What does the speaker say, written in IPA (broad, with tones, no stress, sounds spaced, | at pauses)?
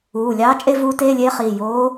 uː˩˧˩ lʲ ɑː˧˥ t͡ʃʼ e˥˧ v uː˧˥ t eː˧˥˧ lʲ eː˧˥ χ iː˩˧˩ j oː˧˥